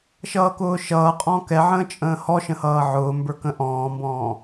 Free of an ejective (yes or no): no